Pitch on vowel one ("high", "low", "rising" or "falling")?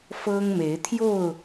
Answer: high